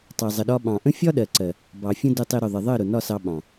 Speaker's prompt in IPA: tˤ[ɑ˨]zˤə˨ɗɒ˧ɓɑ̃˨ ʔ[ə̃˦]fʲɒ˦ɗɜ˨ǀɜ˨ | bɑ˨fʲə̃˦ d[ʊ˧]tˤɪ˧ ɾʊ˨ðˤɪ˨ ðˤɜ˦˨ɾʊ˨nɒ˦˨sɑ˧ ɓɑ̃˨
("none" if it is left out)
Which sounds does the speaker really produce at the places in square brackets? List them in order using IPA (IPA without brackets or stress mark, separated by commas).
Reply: ɑ˨, ə̃˦, ʊ˧